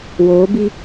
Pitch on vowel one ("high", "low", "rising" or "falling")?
rising